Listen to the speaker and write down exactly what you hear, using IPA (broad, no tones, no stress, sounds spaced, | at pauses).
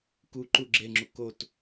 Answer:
k u ǃ u ɡ͡ǁ e ŋ͡ǁ u k o t